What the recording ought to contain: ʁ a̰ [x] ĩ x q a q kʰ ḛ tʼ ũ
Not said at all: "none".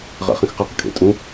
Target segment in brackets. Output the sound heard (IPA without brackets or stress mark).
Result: χ